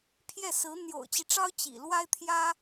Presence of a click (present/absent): absent